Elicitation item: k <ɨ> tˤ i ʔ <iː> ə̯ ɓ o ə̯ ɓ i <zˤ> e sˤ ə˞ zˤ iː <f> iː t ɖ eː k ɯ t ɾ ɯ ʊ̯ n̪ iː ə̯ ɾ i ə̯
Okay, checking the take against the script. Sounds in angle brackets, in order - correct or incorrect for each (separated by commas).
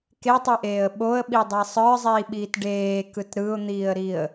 incorrect, incorrect, incorrect, incorrect